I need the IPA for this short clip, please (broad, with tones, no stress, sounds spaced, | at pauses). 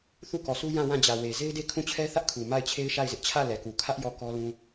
θ u˦˨ k ɔ˨ s u˦ j ã˦˨ w ã˦˨ d͡ʑ ä˨ w e˨ z e˦ ɪ̯ d e˦ kʰ ũ˦˨ t͡ɕʰ ɛ˦ θ ä˦ ʔ kʰ u˨ m a˦˨ ɪ̯ t͡ɕʰ e˦ ɪ̯ ʃ a˦˨ ɪ̯ z ɪ˦ ʔ t͡ɕʰ ä˦˨ l ɛ˨ k u˨ kʰ ä˦ ʔ j ɔ˦˨ k ɔ˦ l ũ˦